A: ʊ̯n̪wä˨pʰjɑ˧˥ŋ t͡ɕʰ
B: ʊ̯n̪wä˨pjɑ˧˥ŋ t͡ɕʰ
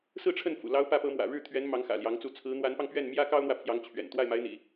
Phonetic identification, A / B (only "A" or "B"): A